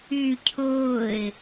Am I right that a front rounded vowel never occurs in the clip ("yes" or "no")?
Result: no